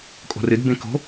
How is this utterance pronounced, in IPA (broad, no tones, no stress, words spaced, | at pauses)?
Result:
kʼo̤rɨd bẽko̤